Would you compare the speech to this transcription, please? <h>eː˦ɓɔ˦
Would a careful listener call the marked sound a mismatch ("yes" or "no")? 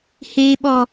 no